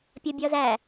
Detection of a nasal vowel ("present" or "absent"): absent